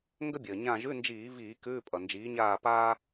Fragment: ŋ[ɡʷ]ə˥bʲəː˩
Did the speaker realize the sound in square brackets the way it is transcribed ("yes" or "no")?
no